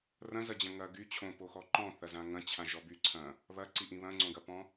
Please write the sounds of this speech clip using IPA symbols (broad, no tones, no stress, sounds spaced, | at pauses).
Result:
r ɐ̃ z ɐ d͡ʑ ɐ̃ ŋ ɐ ɡ y t͡ɕʰ õ p o x ɔ ǃ ɔ̃ θ ɐ z ã ŋ ɐ̃ t͡ɕʰ ã ʒ ɔ b y ǀʰ ɐ̃ | β ɐ ǀ i ʔ ĩ β ɐ̃ ŋ͡ǀ õ ɡ ɐ p ɔ̃